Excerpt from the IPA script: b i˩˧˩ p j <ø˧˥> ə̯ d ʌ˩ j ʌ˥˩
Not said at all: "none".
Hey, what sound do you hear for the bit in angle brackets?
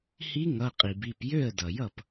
ø˥˩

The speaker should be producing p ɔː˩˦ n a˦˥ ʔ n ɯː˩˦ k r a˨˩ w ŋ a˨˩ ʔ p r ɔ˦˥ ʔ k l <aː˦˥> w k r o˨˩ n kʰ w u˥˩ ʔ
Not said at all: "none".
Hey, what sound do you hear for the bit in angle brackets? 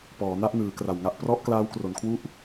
aː˦˥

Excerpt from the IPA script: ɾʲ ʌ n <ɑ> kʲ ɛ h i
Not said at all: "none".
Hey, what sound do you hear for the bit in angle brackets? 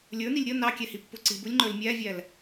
ɑ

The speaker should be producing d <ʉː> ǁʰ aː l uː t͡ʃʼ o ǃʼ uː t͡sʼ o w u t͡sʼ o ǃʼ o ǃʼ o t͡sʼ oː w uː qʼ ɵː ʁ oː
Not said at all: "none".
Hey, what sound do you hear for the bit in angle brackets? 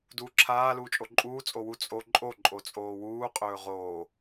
uː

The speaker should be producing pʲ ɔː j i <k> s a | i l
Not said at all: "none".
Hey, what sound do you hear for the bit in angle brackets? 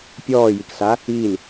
k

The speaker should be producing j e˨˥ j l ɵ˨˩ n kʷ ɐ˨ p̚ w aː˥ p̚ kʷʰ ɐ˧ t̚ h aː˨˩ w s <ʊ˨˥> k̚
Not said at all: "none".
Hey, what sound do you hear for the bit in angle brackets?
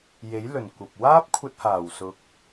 ʊ˨˥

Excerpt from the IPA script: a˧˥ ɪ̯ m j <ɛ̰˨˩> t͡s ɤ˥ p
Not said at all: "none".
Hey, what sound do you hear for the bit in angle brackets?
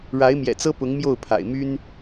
ɛ̰˨˩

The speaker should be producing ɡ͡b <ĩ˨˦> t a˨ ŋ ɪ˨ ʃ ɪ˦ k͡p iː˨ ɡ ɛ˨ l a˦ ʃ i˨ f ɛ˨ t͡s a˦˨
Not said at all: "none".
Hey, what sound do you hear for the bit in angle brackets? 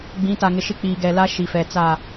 ĩ˨˦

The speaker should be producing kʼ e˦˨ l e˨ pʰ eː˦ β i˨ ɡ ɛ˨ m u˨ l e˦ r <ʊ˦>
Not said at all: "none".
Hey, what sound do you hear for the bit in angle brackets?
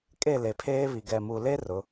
ʊ˨˦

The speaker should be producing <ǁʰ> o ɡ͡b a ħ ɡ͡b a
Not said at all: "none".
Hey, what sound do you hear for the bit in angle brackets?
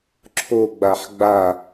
ǁʰ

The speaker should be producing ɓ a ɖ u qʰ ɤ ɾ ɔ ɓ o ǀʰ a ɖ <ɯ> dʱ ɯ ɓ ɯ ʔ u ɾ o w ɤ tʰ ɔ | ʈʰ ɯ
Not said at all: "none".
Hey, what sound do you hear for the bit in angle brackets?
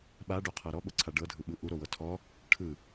ɤ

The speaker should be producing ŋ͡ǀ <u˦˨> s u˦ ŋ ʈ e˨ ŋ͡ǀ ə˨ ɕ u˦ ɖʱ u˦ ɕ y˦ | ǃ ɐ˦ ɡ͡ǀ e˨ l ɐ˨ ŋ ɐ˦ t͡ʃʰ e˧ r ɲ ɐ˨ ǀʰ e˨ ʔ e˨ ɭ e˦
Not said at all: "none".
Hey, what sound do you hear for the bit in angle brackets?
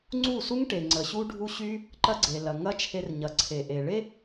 u˦˨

